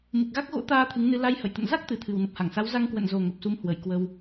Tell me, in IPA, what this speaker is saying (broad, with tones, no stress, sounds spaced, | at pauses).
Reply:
m ɨ˨˩ k̚ ɣ a˦˥ k̚ ɣ o̰˧˥ t̪ aː˧ t̪ʰ ɨ˨˦ ŋ n ɨ˧ l a˧ j h ə̰˧˨ j t̪ ə̰˧˨ n z a˦˥ k̚ t̪ ɨ˨˩ t̪ʰ ɨ˨˩ w n ə˨˩ p̚ h a˧˩ ŋ s a˨˦ w z a˧ ŋ k w ə̰˧˨ n z o˨˩ ŋ ə˨˩ p̚ s u˨˦ m h w ə˧˩ j k w ə˧ w